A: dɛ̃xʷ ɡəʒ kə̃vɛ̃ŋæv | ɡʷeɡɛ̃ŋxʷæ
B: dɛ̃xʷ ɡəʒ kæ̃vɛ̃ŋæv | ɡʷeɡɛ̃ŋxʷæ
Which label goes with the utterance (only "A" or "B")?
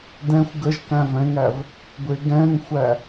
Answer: B